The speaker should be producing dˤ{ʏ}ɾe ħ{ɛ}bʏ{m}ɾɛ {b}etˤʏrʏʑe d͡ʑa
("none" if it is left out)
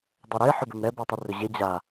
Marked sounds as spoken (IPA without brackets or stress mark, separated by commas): ɛ, ʏ, m, b